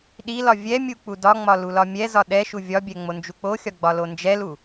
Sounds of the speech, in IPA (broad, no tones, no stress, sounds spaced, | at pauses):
ɗ i l ɒ vʲ ɛ mʲ u k͡p u d ɒ ŋ͡m ɒ l u l ɒ mʲ ɛ z ɒ ɗ ɛ ʃ u vʲ ɒ bʲ ɛ ŋ͡m o n d͡ʒ u k͡p o xʲ ɒ ɡ͡b ɒ l o n d͡ʒ ɛ l u